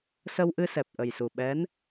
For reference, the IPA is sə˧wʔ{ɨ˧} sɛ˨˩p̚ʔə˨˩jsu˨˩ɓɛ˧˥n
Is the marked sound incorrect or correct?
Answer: correct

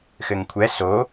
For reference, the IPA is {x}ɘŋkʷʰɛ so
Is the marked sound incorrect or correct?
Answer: correct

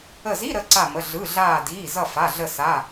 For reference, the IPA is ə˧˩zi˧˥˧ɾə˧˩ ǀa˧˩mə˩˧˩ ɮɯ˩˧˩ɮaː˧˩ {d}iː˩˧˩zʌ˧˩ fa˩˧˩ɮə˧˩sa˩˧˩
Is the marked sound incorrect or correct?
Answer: correct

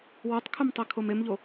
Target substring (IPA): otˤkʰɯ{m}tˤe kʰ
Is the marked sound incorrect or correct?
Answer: correct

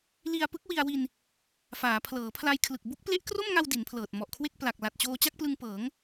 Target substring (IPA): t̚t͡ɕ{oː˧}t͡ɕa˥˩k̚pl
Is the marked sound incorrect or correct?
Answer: correct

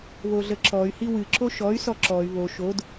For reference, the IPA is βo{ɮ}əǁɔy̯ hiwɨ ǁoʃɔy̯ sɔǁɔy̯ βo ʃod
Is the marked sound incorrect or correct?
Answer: correct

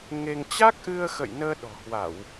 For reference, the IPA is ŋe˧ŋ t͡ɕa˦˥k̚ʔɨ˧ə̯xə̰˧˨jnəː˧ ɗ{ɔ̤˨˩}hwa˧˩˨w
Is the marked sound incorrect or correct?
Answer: correct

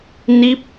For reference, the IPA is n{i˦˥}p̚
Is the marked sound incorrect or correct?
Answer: correct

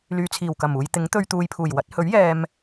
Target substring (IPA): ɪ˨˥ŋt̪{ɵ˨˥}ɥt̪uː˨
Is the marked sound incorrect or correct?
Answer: incorrect: ɵ˧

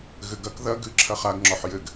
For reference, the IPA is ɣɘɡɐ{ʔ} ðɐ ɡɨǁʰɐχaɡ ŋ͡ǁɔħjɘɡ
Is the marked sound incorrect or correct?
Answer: incorrect: k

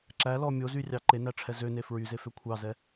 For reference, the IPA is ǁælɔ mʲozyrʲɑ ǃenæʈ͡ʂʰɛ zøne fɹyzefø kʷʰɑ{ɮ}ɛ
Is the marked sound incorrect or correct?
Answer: incorrect: z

